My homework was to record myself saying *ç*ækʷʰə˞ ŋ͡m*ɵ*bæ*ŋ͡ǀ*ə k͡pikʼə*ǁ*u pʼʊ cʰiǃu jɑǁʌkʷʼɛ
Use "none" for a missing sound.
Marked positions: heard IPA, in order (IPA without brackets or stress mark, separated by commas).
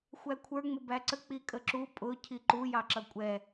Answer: xʷ, ʊ, ǀ, ǁ